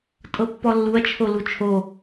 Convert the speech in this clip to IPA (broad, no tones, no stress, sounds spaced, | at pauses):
tʼ ɤ pː ɔ lː u ɐ̯ t͡ʃʰ o l u t͡ʃʰ o